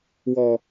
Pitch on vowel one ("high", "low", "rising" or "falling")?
low